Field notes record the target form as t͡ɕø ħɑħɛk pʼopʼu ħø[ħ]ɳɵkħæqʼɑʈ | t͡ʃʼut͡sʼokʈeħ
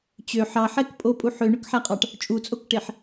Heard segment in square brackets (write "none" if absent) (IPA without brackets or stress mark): none